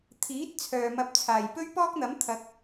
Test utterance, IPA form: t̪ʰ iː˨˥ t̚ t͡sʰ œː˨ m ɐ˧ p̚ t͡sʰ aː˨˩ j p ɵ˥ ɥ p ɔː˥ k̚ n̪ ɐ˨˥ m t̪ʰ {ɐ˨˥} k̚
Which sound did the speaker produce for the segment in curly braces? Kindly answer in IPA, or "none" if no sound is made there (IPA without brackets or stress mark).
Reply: ɐ˨˥